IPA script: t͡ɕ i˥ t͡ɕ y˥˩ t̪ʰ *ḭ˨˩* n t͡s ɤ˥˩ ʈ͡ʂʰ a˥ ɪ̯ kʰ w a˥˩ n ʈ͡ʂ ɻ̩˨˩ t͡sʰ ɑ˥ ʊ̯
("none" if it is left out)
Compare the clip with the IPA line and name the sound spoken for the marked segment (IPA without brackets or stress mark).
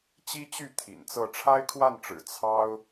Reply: ḭ˨˩